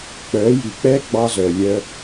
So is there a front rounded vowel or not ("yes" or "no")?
yes